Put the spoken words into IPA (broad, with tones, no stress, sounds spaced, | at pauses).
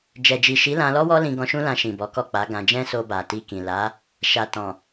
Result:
d͡ʒ ɛ˨ d͡ʒ i˨ ʃ i˨˦ l ã˧ l ɔ˦ w ɔ˦ l ĩ˧ ɡ ɔ̃˧ ʃ ũ˦ l ã˧ ʃ ĩ˨ b ɔ˨˦ k ɔ˦˨ k͡p a˨˦ ɡ ã˧ d͡ʒ ɛ̃˦ s o˧ b a˨ t i˧ k ĩ˨ l a˨˦ | ʃ a˨ t ɔ̃˨